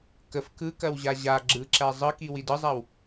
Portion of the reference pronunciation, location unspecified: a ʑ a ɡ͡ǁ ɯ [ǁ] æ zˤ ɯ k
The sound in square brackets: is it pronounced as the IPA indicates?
yes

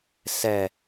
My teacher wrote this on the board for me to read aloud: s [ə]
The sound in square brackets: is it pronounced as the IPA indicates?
no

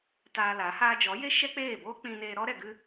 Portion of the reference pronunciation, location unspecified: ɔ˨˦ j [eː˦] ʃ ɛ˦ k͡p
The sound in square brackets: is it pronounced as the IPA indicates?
no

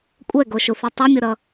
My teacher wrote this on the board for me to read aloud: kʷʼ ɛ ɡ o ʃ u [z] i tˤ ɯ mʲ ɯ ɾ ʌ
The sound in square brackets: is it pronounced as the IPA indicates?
no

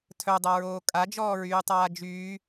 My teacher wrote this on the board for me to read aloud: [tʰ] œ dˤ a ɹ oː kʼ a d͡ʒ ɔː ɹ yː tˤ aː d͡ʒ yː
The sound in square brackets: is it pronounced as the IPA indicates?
yes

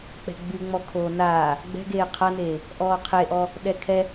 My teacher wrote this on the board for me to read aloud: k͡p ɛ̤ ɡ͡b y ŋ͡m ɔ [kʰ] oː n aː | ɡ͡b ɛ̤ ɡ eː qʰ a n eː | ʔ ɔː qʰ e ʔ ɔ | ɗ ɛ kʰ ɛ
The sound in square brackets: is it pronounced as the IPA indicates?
yes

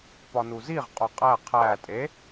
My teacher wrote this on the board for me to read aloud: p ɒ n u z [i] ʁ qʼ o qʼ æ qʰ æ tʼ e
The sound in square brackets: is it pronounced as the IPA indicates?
yes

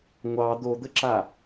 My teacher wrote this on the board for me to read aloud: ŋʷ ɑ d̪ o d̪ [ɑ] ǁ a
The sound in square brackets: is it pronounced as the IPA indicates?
no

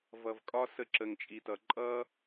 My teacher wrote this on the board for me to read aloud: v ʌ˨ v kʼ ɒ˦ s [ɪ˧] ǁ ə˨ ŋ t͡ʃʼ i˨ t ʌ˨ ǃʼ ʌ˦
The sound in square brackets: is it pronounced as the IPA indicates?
no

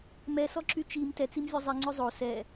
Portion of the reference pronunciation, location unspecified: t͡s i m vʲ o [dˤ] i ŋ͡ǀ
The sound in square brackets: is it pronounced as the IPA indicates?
no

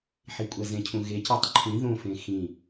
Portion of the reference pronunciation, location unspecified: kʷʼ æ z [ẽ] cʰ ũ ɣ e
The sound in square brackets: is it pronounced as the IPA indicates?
yes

